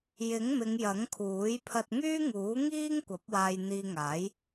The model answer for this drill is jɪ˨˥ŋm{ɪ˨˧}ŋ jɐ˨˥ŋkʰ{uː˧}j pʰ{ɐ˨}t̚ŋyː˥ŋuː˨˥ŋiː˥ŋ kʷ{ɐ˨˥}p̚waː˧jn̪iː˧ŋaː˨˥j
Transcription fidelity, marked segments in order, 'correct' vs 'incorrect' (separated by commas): correct, incorrect, incorrect, correct